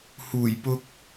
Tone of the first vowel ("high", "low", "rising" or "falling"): low